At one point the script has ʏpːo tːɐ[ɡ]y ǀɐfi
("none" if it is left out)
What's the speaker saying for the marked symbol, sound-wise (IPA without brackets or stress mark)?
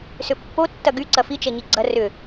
ɡ